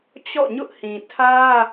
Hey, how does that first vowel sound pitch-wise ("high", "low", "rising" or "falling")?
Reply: falling